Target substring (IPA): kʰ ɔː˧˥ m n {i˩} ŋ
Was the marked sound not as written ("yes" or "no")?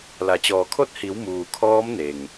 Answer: yes